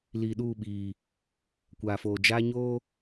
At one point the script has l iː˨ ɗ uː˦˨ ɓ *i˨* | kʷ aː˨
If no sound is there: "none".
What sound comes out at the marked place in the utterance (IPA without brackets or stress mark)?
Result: iː˨